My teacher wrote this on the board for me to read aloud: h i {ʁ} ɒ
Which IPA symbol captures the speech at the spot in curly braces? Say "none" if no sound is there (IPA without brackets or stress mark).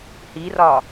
r